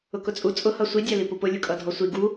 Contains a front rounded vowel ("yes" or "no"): no